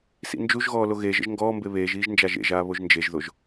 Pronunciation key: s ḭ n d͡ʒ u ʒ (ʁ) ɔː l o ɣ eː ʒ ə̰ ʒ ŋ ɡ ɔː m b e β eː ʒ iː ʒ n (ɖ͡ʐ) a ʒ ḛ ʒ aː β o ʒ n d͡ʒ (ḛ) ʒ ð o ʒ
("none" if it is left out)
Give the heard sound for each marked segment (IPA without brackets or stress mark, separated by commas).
ɣ, d͡ʒ, e